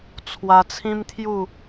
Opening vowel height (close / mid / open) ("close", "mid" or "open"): open